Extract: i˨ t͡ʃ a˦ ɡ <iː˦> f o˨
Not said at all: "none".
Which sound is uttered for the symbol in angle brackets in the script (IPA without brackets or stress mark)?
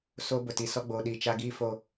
iː˦